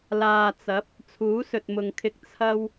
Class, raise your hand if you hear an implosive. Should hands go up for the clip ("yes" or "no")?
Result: no